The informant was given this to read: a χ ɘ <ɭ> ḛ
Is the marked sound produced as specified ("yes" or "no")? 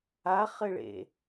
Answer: yes